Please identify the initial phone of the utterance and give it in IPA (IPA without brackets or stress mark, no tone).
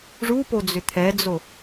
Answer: ʐ